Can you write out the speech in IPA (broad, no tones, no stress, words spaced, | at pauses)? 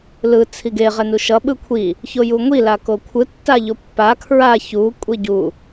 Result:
lɯ t͡sʰiɡe ʁɛnuʃʌ ɓɯkʷʰi | çojuŋʷi lakokʷʰɯ tːaʎopːa kʰɹa çu kʷʼiɟu